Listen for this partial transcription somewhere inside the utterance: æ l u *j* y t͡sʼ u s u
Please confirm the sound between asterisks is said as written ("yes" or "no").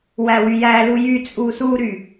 yes